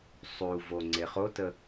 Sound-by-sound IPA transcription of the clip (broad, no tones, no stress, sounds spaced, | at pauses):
sˤ u v o ŋ͡ǀ e χ o t ə